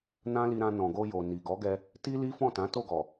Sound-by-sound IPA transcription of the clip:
n ã˦ l i˧ ɾ ã˧ n ɔ̃˨ ɡ o˧ j o˨ n i˨ ɡ ɔ˨˦ ɡ ɛ˧ | t i˦ l i˦ f ɔ̃˦˨ t ã˨˦ t o˦˨ ɡ ɔ˨

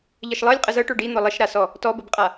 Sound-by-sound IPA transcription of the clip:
ʎ ə ʃ lˠ ɤ lʲ qʼ ə z ɤ ʈ o ɖ i n̪ ɔ lˠ ɪ ʃ ɾ a s ɔ | t ɔ b ə b qʼ a

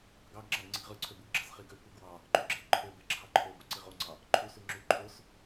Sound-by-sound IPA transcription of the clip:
ɡ ɑ ɡ ŋ͡ǁ ɑ ɡ ŋ͡ǀ i ɡ ʁ ɯ ǀʰ ø b u ɡ ɡ͡ǁ ɑ s χ i ɡ ø kʷ e ɡ w ɑ | ǃ y ɡ͡ǁ e ǃʰ ø b e ǁʰ ɑ ǃʰ o b o ǀ i ʁ o ŋ͡ǀ ɑ | ǃʰ u s y ŋ͡ǁ y ǃʰ o s

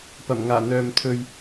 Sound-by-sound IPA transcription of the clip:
p ɐ˨˩ m ŋ aː˨˩ n̪ œː˧ m t̪ʰ ɵ˧ ɥ

